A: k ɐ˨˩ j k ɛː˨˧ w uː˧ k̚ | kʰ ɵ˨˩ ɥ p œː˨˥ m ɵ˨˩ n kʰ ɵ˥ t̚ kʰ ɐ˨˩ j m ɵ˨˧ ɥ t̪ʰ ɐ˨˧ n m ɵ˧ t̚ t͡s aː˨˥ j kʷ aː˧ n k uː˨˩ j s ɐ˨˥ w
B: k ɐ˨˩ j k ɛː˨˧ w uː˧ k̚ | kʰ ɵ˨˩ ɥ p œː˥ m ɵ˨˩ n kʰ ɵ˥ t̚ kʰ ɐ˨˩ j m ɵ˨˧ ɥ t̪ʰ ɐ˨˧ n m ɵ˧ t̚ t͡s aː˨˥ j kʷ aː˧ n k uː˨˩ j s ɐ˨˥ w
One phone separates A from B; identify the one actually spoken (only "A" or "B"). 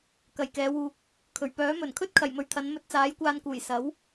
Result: A